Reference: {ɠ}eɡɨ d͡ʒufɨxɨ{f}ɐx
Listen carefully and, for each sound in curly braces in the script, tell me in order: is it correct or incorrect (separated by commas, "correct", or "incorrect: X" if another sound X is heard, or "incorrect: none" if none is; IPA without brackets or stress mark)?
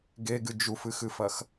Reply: incorrect: ɡ, correct